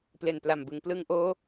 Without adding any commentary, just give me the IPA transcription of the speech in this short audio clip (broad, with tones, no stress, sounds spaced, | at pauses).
p l e˨˩ n p l a˨˩ m b ɯ˩˦ ŋ p l ɯ˧ ŋ ʔ oː˦˥